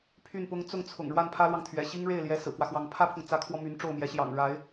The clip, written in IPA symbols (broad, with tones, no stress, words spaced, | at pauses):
pʰy˥˩npʊ˥ŋ t͡sʊ˥˩ŋt͡sʰʊ̰˨˩ŋ ɻwa˥˩npʰä˥lwɑ˨ŋt̪ʰɥɛ̰˨˩ ɕi˥ŋɻe˥˩ɪ̯ljɛ˧˥ sɹ̩˨˩kwä˦xwɑ˧˥ŋ pʰä˥pʰʊ˨ŋ t͡sä˧˥kʰwɔ˧ my˧˥n ʈ͡ʂo˥˩ʊ̯mjɛ˧˥ɕjɑ̰˨˩ŋ ɻa˧˥ɪ̯